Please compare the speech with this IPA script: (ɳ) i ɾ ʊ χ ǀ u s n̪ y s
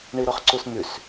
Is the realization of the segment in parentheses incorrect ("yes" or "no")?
no